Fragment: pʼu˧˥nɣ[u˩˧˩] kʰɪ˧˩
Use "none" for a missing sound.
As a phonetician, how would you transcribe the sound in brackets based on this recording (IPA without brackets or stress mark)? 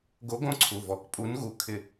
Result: u˩˧˩